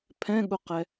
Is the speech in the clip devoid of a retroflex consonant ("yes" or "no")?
yes